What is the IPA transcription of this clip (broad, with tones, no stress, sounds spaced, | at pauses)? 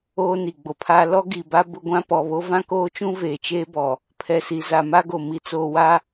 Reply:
oː˦ n i˨ ɡ͡b o˨ pʰ aː˦ l ɔ˦ ɡ i˨ b a˦ b ʊ˦ ɡʷ ã˦ p ɔ˨ β o˦ v ã˦ k oː˦ t͡ʃ ũ˦ v eː˨ t͡ʃ eː˦ b ɔ˨ | pʰ ɛ˨ s i˨ z a˨ m a˦ ɡ o˨ m i˨ t͡s oː˨ w a˦